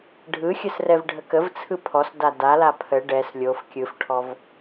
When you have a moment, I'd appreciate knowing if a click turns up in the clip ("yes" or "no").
no